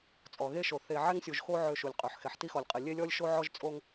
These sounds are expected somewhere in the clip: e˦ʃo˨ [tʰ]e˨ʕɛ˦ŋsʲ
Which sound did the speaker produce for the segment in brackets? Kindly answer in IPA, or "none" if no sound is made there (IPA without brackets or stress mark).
θ